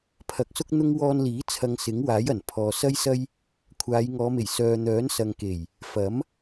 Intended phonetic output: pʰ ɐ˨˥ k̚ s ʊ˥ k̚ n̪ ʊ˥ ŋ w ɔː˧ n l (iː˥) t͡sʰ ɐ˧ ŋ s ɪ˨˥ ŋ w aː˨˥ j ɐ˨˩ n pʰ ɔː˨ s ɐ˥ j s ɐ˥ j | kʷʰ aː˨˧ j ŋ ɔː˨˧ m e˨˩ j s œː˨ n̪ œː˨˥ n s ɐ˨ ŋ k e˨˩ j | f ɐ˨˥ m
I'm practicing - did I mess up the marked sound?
yes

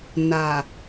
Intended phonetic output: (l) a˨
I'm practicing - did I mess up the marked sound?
yes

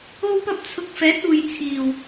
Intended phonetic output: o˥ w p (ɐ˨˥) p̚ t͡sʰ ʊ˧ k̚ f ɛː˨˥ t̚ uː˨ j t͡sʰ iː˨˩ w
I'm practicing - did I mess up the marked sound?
yes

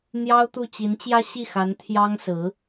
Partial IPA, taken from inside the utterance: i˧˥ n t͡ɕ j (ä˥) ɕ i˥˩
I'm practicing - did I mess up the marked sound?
no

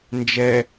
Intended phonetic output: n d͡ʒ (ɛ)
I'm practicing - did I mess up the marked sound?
no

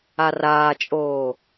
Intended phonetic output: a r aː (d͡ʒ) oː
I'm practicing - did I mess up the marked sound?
yes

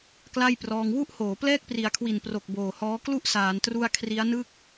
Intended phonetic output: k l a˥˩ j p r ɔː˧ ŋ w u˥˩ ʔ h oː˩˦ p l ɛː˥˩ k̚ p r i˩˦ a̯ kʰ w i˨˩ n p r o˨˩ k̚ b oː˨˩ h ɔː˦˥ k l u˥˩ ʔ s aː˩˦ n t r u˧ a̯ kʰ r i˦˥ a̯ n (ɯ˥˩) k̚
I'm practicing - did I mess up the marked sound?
no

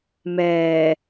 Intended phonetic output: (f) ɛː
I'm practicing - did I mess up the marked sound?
yes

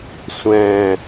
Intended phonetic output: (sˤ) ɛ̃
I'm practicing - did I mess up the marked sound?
yes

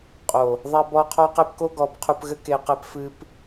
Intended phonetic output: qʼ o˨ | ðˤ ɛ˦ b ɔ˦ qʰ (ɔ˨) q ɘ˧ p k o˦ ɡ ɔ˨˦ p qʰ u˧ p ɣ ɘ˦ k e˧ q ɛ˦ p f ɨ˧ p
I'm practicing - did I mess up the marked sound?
yes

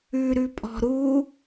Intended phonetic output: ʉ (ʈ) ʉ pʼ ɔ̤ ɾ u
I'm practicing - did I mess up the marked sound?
yes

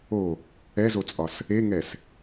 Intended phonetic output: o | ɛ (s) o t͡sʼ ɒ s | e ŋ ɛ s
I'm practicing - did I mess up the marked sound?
yes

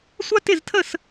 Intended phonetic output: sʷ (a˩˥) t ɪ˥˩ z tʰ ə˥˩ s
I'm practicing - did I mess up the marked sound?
yes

